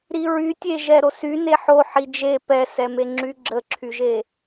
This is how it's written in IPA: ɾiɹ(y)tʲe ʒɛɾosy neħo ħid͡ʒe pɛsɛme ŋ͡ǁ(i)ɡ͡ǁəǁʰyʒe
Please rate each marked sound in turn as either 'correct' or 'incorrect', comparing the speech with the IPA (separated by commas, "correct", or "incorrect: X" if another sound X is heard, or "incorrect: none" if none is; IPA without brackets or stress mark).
correct, incorrect: y